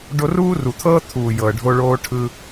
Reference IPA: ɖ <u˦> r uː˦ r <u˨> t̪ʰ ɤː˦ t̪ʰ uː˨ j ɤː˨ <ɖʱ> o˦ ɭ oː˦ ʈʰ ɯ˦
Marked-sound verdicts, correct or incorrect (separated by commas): incorrect, correct, correct